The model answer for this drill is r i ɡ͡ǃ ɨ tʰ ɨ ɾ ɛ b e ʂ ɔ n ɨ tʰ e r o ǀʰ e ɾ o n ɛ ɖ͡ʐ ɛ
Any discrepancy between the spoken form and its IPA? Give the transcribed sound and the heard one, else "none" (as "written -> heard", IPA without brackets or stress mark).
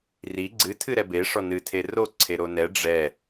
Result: ɡ͡ǃ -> ɡ͡ǀ